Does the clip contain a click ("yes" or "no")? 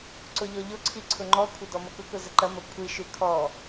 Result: yes